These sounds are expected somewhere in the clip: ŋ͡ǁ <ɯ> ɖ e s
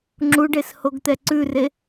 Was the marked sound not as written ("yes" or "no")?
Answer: yes